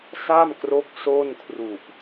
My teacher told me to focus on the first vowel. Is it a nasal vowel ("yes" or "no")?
no